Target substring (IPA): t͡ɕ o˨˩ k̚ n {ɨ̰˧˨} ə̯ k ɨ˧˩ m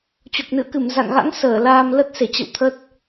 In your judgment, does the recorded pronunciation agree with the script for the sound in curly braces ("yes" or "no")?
yes